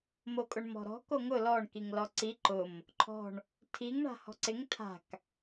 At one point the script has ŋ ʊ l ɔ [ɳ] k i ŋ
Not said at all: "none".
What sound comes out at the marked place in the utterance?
ɳ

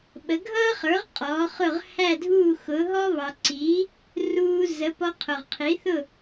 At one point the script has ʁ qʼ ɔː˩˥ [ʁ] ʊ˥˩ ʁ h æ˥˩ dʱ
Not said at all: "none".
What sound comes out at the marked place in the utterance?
χ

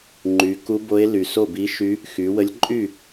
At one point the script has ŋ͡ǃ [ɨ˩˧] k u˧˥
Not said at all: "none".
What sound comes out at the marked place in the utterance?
y˩˧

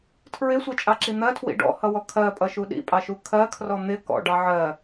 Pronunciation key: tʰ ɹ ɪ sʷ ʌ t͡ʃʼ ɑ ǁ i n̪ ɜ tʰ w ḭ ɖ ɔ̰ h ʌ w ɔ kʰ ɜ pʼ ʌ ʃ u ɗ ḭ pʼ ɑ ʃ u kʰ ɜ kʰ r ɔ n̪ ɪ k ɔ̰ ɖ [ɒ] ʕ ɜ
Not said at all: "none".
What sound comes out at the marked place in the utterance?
ɑ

